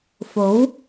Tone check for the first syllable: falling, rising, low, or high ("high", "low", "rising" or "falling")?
rising